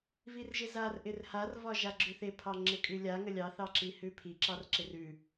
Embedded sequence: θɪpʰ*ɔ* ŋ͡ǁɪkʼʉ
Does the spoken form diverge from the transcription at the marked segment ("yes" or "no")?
yes